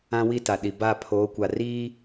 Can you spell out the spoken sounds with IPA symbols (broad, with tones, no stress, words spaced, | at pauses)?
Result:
ã˦wi˦ta˨ɗi˨ ba˦˨pʰoː˨˦ kʷa˨riː˦